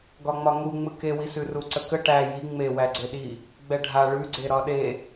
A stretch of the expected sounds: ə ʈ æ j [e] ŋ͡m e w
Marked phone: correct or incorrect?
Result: incorrect